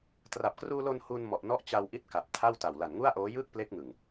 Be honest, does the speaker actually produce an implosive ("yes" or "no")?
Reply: no